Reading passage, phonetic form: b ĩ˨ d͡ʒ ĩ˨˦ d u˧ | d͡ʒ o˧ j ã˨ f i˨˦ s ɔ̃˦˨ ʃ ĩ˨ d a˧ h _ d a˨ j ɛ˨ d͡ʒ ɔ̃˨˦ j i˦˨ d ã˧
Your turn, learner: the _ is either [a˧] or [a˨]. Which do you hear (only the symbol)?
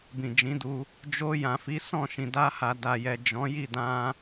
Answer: a˨